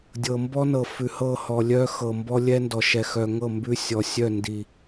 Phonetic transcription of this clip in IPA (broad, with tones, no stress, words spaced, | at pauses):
dʲɤ˨mbɔ˦ nɤ˨ fʉ˨hɤ˦˨hɔ˨ lʲœ˦xɤ˨ mbɔ˦lʲɛ˦ndɔ˨ʃɛ˨ xœ˨ŋɤ˦˨ mbʉ˦ sʲɔ˨sʲœ˦˨ndi˨